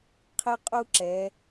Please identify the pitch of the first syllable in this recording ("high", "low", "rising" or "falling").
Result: high